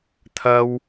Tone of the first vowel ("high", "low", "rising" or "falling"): high